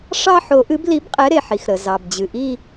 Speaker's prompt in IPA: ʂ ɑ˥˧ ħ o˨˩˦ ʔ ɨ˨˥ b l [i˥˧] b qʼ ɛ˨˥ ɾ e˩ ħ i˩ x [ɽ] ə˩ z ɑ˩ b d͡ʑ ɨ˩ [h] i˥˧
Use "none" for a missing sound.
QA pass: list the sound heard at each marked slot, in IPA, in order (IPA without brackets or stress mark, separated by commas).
i˨˥, ɾ, ʔ